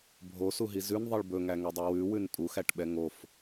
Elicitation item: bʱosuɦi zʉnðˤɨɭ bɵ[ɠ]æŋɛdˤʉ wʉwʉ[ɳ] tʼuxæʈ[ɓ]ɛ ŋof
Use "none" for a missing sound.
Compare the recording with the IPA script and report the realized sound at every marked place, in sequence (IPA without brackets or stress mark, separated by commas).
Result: ŋ, n, ɓ